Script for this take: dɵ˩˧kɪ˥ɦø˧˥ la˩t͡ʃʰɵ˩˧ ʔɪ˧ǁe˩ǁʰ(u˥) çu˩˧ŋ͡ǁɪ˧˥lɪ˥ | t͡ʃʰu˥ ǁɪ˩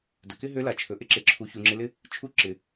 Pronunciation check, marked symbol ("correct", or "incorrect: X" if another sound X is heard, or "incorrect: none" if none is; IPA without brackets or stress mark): incorrect: u˩˧